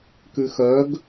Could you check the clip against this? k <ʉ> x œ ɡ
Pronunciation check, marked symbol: correct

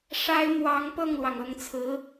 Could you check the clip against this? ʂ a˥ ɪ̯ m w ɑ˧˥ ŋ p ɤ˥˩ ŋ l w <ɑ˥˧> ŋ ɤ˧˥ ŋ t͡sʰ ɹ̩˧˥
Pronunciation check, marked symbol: incorrect: ɑ˩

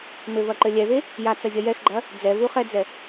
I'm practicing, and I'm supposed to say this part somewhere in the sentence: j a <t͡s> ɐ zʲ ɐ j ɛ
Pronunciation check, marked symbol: correct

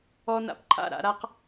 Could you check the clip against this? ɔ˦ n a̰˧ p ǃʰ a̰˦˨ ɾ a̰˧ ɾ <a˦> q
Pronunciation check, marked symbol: correct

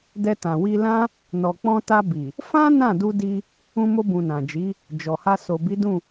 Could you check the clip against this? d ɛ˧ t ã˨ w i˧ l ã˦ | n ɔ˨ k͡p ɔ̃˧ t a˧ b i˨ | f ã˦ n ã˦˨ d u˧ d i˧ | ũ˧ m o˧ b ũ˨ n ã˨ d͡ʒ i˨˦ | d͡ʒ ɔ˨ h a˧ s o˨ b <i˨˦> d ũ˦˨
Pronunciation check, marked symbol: correct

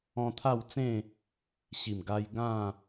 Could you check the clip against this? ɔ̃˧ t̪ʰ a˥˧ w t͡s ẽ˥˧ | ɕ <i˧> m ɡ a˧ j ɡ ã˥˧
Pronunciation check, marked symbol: incorrect: i˨˩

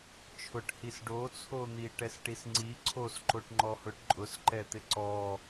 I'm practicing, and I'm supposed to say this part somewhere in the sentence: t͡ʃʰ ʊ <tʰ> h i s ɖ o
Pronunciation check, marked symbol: incorrect: ʈ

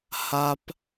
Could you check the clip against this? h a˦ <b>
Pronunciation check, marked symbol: incorrect: p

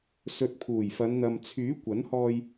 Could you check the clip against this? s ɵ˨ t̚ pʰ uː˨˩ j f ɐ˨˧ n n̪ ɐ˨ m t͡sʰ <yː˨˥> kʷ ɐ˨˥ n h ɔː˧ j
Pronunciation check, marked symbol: correct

